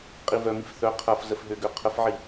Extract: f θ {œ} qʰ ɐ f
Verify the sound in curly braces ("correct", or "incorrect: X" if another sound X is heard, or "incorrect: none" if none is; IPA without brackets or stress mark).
correct